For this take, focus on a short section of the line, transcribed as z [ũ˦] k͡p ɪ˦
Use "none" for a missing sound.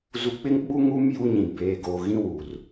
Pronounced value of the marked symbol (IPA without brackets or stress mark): u˦